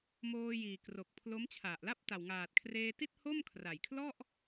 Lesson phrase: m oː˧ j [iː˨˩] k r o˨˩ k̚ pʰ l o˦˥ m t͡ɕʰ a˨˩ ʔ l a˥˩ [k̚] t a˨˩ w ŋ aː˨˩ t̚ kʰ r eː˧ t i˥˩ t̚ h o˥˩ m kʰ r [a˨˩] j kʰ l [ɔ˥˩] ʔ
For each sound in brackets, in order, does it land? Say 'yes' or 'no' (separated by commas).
yes, no, yes, yes